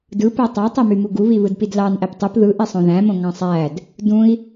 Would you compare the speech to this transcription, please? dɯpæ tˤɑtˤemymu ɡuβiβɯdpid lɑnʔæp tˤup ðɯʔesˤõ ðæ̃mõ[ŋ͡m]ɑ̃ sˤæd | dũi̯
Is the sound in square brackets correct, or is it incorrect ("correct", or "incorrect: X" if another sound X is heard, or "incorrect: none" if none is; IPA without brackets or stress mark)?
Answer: incorrect: ŋ